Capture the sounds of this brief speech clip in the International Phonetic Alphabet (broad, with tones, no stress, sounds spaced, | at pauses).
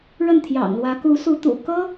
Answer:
ɻ ə˥˩ n t̪ʰ j ɑ̰˨˩ ŋ l w ä˧˥ k u˧˥ s u˧˥ t̪ ṵ˨˩ k ɤ˥